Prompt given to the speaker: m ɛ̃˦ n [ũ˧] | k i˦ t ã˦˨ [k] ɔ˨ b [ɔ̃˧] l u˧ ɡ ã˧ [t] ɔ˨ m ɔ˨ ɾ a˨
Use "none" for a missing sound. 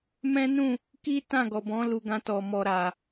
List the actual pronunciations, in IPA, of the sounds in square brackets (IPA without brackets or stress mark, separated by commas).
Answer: ũ˦˨, ɡ, ɔ̃˨˦, t